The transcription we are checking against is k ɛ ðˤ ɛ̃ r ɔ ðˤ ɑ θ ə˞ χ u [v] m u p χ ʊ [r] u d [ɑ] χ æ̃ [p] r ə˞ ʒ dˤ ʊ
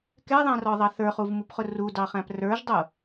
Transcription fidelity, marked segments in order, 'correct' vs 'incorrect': correct, correct, correct, correct

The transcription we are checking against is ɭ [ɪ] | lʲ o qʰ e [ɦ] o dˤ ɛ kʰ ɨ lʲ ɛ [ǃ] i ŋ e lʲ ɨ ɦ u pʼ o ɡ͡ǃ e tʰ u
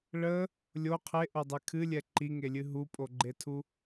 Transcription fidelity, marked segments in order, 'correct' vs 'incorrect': incorrect: ə, incorrect: ʔ, correct

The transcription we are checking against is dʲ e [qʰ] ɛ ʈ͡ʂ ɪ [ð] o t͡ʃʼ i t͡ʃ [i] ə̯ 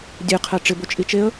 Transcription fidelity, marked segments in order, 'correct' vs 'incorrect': correct, incorrect: b, incorrect: e

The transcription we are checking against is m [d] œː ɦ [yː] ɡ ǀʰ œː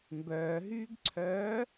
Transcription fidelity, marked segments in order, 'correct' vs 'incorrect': incorrect: b, correct

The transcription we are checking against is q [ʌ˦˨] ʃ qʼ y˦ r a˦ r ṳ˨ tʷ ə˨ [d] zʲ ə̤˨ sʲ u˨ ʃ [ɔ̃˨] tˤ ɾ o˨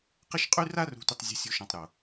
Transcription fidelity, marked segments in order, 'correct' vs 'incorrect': incorrect: ə˦˨, incorrect: tˤ, correct

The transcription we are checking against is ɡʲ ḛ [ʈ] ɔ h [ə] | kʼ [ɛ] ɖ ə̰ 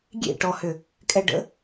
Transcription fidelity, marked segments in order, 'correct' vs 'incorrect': correct, incorrect: ʏ, correct

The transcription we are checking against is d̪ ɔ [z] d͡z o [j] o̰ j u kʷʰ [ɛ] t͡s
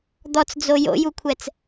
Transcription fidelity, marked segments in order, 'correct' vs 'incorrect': incorrect: t͡s, correct, correct

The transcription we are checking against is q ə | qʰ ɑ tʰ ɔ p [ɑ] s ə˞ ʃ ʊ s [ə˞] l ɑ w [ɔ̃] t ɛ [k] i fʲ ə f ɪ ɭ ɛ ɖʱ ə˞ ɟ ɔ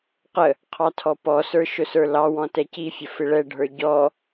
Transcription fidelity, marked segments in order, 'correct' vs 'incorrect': incorrect: ɔ, correct, correct, incorrect: c

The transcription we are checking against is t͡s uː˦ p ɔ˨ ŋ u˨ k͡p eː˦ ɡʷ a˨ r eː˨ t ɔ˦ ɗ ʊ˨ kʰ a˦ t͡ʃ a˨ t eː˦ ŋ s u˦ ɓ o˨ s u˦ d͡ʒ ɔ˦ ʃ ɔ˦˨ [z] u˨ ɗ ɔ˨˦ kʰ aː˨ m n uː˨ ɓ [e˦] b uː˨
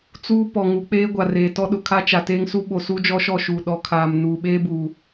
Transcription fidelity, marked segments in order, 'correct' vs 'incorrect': incorrect: ʃ, incorrect: eː˦

